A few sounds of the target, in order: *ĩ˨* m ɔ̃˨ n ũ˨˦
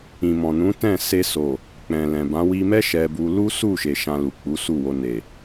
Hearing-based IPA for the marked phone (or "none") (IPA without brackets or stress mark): ĩ˨